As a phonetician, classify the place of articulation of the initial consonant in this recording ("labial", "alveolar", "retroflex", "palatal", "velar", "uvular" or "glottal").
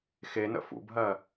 velar